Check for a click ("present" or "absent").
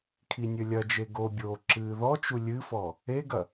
present